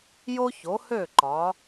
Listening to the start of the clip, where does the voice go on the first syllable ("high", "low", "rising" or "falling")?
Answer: high